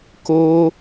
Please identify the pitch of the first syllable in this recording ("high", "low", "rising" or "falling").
high